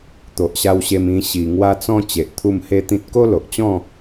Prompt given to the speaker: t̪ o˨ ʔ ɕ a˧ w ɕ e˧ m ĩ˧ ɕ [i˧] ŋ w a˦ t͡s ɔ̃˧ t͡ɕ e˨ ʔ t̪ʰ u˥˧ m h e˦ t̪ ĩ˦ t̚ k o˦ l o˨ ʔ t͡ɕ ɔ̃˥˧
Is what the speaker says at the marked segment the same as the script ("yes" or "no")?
yes